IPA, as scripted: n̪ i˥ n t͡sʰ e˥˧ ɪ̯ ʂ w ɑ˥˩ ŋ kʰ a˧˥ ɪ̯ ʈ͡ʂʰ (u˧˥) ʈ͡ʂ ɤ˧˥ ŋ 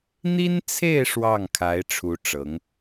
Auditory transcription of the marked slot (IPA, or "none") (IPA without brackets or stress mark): u˧˥